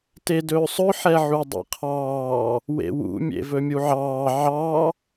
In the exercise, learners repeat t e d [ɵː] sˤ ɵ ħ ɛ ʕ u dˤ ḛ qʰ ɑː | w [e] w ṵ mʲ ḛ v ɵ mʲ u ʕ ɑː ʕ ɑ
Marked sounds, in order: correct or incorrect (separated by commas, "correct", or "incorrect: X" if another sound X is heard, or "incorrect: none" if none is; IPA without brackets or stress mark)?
correct, incorrect: ḛ